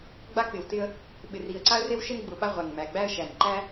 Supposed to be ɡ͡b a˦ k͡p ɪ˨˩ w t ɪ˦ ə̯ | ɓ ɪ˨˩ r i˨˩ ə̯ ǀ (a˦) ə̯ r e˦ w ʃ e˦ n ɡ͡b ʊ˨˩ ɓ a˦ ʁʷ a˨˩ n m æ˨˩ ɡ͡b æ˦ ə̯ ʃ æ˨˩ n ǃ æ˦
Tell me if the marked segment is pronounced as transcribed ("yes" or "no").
yes